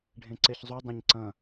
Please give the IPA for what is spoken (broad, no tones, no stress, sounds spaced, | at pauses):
ɖʱ ẽ ǀ e ç zˤ u dˤ ẽ ɲ ǀ ɐ̃